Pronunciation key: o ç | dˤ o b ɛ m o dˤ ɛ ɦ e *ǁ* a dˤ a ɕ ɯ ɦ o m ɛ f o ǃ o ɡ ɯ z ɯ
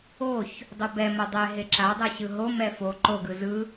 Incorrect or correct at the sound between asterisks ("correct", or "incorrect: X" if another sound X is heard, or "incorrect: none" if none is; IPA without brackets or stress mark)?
correct